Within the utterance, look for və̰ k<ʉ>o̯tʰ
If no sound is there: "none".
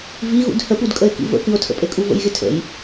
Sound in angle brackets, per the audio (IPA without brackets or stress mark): ɨ